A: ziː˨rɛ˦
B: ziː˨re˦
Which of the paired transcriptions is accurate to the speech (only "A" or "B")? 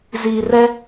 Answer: A